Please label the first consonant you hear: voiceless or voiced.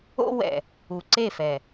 voiced